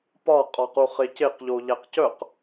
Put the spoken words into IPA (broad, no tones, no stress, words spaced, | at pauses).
pɒ qʼɒquχeceq ʎoʎæqcœq